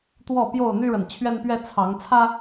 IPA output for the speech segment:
t̪ w ɔ˥˨ p j o˥˨ ʊ̯ n̪ y˦ ɻ ə˨ n t͡ɕʰ ɥ ɛ˦ n p ɥ ɛ˦ t͡sʰ ɑ˨˦ ŋ t͡sʰ ä˦

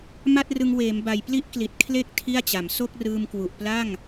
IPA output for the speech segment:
m a˥˩ t̚ r ɯ˧ ŋ w eː˩˦ m b a˨˩ j p l i˥˩ ʔ k l i˨˩ t̚ kʰ l e˥˩ k̚ tʰ i˥˩ a̯ t͡ɕ a˩˦ m s o˥˩ k̚ r ɯː˧ m k w u˨˩ ʔ p l a˥˩ ŋ

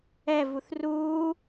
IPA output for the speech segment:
ɛ v u θ r uː

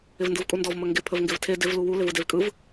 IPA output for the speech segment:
ɪ v n d ɯ v kʼ u n d ɔ v m ə ŋ ɡ ɪ pʰ ə v ŋ ɡ ɪ v tʰ e d ɪ v l u w u l ɪ v ɯ d e v kʼ ɯ v

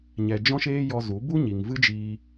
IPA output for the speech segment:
ɲ ɛ˧ d͡ʒ ɔ̃˦ ʃ eː˦ j ɔ˧ z u˨˦ b u˦ ɲ i˨ ŋ v ɨ˦ d͡ʒ iː˧

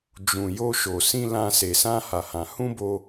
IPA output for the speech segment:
d͡ʒ ũ˨ j o˧ ʃ o˨ s ĩ˧ l ã˧ s e˨ s ã˧ h a˨ h ã˨ h ũ˧ b o˧

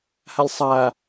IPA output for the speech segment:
h a lʲ sˤ a

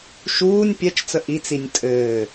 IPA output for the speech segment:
ʃ uː nʲ pʲ ɛ t͡ʃ t͡s ə ʔ i t͡s i nʲ tʼ ɘː

